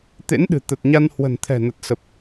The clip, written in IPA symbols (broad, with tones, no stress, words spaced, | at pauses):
t̪ḛ˧˥nɗɨ̤˨˩t̪ə˨˩t̚ɲa˧n hwə̤˨˩nt̪ʰɛ̤˨˩nə˨˩t̚ sə˨˩p̚